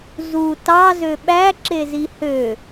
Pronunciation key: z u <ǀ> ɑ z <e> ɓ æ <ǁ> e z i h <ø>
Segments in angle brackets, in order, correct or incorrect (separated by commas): incorrect, incorrect, correct, correct